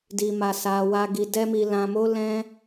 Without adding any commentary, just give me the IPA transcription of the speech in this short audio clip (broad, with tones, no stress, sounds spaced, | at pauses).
d i˧ m a˧ s a˧ w a˧ ɡ i˧ d ɛ˦ m i˧ l ã˧ m o˦ l ɛ̃˦